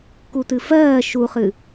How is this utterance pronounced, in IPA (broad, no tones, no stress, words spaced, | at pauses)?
kutɨfɜː ʃuχɨ